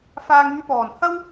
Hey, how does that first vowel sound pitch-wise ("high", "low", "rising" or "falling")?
low